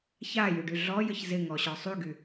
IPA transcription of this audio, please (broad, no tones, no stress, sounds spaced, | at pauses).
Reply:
ç a j y ɖ y ɮ ɔ j ə ç z ɪ ŋ ɔ ɕ ɔ sˤ y ɡ y